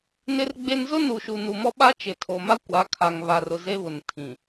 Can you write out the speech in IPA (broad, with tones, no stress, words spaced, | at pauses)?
nɪ˦rɡ͡be˦n zʊ˦nu˨ʃu˨ nu˨mɔ˦ɓa˦ t͡ʃɪ˨tʰo˨ma˦ kʷa˨˦kʰa˨ŋ βa˨rʊ˨ ze˦βʊ˨n tʰĩ˨